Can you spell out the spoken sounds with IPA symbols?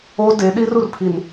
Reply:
o˦de˨˦ɗi˦r u˨rpʰi˨n

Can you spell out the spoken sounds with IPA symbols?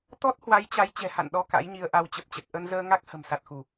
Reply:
t̪ɔ˦˥t̚ hwa˨˦jt͡ɕa˨˦j t͡ɕɛ̤˨˩ha̰˧˨nɗɔ˧ ka̰˧˥jɲi˧ə̯ʔa˧w t͡ɕə˨˩p̚t͡ɕə˨˩t̚ ʔə˧nzəː˧ŋa˦˥k̚ hə̤˨˩msa˨˩t̚xu˧˩˨

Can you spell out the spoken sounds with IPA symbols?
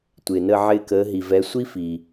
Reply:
tʷɪː˩nə˦˨ ʕɪː˦˨kəː˨˦ ɦi˩vɛ˨˦ sʷi˥fi˩

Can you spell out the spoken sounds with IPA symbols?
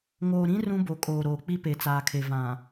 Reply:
ŋoː˨ɾĩ˦ rũ˦bo˨ kʼoː˨ɾoː˨k͡pi˦pe˨ t͡saː˨kʰe˨ vã˨

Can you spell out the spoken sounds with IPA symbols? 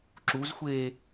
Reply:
ǁuzxʷeː

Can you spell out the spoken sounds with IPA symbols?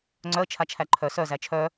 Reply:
ŋ͡ǀœə̯t͡ʃʰat͡ʃʰæ ǃʰœ sœzæ t͡ʃʰœ

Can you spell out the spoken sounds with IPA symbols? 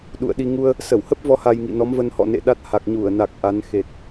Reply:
ɗṵ˧˨ə̯ɗi˧ ŋu˧ə̯ | sə˧˩whə˦˥p̚vɔ˨˦ ha˧jŋḭ˧˨nɔ˨˦mvə˧n hɔ̰˧˨nḛ˧˨ɗa˦˥t̚ ha˨˩k̚ɲu˧˩ə̯na˨˩k̚ ʔa˨˦n xe˨˩t̚

